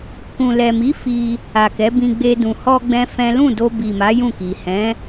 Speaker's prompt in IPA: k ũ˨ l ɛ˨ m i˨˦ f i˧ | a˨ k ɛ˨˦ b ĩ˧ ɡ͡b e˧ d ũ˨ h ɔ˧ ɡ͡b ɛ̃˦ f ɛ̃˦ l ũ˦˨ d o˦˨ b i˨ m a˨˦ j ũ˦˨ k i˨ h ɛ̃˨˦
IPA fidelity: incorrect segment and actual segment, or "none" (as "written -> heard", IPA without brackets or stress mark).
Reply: o˦˨ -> o˧